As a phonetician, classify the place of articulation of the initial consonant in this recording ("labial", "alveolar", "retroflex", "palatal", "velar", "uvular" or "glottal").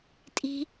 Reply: alveolar